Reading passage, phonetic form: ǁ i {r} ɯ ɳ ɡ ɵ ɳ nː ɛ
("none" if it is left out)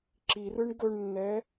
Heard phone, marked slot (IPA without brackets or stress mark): r